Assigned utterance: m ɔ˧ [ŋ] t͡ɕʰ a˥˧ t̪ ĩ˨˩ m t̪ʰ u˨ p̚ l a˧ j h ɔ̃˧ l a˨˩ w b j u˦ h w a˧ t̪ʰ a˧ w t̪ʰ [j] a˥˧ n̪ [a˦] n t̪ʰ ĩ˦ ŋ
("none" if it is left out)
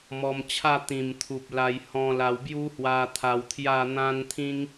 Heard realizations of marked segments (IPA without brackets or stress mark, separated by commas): m, j, ã˦